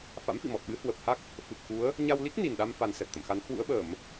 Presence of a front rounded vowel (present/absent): absent